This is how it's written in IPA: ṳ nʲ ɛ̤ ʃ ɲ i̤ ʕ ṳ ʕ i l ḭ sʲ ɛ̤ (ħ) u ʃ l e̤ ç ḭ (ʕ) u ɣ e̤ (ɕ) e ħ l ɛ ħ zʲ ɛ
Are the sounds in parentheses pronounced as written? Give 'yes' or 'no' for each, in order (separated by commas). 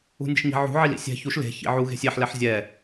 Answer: no, yes, no